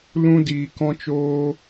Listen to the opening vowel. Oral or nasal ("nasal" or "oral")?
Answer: nasal